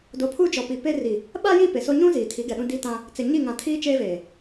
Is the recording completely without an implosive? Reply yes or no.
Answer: no